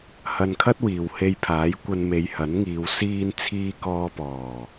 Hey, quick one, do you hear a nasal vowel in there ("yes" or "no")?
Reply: no